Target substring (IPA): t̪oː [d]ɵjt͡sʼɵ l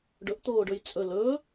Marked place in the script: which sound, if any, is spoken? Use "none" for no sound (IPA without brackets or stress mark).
ɖ